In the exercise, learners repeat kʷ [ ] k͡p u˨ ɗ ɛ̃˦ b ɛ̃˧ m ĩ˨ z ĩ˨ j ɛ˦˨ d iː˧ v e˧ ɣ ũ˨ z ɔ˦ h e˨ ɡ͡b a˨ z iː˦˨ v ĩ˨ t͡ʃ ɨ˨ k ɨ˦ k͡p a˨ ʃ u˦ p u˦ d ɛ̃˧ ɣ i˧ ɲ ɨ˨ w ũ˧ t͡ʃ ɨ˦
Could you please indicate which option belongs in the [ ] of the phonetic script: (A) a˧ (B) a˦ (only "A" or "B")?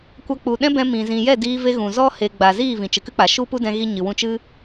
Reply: A